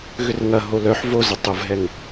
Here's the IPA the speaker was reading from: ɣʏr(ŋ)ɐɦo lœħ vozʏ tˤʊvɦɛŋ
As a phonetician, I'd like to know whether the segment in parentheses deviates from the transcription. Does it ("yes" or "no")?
no